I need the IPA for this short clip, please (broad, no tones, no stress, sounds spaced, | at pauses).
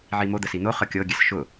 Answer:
ʕ i m o d̪ ə s i n̪ o χ ɤ kʲ ɤ ɡʲ ɛ s ʃ ʊ